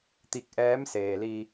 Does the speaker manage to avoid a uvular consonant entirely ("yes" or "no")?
yes